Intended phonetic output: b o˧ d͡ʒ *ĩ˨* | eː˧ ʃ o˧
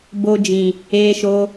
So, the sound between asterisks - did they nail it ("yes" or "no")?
yes